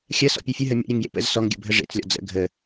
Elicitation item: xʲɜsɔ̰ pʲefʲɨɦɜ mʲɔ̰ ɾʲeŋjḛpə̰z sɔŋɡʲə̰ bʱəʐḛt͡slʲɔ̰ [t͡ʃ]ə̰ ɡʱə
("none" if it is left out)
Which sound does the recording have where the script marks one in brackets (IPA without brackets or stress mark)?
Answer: d͡z